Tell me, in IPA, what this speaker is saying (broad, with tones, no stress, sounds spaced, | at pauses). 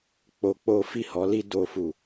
k͡p o˧ k͡p o˦ f i˦˨ h ɔ˨˦ l i˦ d o˧ f u˨